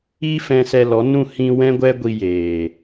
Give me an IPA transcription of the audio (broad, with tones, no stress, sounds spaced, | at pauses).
i˦ f ɛ̃˧ s ɛ˧ l ɔ˨˦ n ũ˦˨ h ĩ˧ w ɛ̃˦ ɡʷ ɛ˦ ɡʷ i˧ j eː˨